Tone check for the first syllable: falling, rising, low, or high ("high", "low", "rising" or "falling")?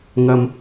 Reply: high